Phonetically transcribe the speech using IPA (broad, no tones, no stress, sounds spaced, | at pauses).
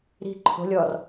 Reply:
ɾ i̤ ǃʰ o̤ lʲ ɔ r